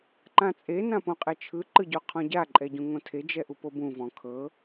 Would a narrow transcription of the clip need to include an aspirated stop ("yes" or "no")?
yes